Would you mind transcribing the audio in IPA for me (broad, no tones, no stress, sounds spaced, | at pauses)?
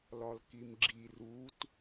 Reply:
l ɒ l k i m ɡ͡ǁ i r u t